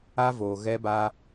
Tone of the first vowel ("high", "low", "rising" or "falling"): high